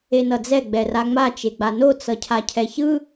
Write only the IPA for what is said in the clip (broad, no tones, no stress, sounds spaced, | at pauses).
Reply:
e n ʌ d͡z ɛ ɡ͡b ɛ r a ŋ͡m a t͡ʃ e ɡ͡b a n o t͡s ʌ cʰ a cʰ ɛ ç ɯ